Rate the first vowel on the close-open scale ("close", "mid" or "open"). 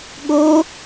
mid